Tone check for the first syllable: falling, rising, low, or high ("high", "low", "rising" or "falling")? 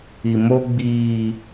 low